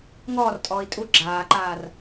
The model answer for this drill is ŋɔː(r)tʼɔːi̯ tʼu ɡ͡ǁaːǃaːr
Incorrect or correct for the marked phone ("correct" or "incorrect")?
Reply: correct